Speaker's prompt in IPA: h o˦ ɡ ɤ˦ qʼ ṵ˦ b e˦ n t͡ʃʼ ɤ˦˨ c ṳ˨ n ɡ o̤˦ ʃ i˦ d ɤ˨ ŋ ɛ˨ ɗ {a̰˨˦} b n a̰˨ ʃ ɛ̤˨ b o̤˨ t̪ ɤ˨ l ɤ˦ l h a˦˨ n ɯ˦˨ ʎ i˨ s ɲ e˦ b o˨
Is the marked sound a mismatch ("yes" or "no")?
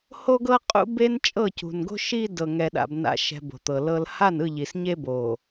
yes